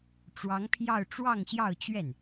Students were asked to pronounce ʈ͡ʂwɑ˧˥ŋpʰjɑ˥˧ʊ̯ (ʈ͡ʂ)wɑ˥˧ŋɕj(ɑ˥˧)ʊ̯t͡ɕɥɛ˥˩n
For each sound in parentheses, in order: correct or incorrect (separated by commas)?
correct, correct